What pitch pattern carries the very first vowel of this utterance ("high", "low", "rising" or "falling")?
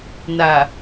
low